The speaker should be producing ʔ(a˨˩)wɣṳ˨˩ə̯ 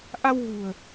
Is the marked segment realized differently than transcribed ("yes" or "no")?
yes